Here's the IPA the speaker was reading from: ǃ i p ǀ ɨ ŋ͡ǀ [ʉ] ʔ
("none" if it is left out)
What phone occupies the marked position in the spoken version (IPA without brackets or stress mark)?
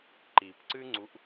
u